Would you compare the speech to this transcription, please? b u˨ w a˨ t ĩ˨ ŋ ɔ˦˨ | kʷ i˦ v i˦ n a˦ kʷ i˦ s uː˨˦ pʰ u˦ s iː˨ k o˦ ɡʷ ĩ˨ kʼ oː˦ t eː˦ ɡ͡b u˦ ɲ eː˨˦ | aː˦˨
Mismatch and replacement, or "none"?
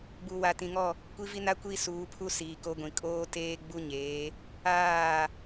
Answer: none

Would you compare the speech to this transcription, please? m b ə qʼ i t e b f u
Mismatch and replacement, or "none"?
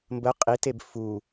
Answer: none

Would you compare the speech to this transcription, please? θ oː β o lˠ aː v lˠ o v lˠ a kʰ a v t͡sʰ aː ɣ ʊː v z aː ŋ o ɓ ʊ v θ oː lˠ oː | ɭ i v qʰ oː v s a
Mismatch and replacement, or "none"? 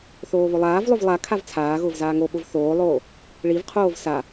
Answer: none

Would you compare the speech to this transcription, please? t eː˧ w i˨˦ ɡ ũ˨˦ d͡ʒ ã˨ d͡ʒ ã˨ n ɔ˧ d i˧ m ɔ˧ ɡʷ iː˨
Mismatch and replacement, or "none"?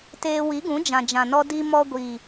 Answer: none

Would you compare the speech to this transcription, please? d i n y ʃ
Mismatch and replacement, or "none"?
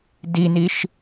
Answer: y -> i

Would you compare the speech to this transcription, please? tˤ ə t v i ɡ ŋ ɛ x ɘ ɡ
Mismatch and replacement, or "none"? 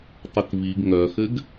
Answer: ɛ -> œ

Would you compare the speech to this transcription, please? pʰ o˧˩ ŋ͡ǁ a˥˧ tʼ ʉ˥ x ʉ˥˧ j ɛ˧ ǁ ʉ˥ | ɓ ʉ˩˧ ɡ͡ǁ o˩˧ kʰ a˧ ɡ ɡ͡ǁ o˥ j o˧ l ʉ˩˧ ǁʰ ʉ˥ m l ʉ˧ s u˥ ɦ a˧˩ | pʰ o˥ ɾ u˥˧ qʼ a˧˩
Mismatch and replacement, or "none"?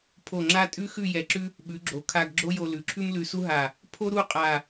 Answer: none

